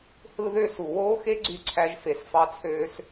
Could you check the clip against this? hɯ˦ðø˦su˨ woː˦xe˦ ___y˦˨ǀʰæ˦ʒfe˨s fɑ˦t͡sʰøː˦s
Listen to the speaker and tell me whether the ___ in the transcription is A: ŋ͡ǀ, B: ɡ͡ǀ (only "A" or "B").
B